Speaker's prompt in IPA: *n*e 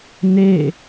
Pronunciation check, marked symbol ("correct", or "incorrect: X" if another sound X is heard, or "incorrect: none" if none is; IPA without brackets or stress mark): correct